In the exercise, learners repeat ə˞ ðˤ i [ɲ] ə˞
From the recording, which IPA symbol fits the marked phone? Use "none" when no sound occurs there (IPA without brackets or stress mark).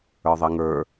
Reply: ŋ